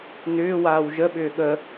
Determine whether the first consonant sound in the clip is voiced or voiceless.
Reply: voiced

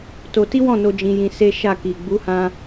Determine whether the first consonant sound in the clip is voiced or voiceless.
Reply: voiceless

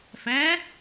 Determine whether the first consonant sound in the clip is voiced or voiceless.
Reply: voiceless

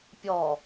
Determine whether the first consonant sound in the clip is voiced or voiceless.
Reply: voiceless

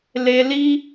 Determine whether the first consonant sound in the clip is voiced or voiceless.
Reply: voiced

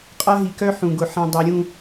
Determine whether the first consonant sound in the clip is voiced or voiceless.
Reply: voiceless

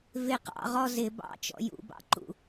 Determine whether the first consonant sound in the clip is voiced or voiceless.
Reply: voiced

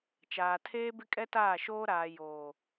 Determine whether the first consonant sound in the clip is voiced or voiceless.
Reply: voiceless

